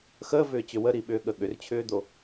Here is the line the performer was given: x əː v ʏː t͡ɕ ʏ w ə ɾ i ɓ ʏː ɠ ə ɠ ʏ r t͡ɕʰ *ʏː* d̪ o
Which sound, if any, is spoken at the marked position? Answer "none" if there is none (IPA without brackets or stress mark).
ʏː